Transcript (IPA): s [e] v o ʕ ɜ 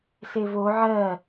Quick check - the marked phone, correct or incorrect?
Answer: correct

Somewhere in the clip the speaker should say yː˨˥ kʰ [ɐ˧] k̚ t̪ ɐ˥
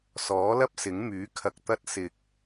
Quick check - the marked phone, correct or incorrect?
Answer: correct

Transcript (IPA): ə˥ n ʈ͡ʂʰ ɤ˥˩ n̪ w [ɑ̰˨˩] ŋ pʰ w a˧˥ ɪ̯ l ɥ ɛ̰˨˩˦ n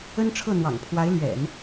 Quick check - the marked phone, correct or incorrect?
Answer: correct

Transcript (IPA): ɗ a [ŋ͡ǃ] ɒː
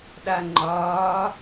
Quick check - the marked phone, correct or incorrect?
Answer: correct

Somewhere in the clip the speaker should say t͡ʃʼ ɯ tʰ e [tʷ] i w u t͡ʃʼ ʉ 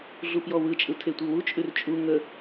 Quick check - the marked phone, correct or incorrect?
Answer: correct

